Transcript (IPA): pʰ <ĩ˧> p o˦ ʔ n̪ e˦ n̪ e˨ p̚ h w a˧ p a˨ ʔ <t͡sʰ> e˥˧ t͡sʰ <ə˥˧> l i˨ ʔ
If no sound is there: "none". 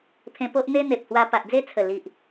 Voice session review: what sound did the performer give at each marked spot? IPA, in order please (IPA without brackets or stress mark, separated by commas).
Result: ẽ˧, d͡z, ə˨˩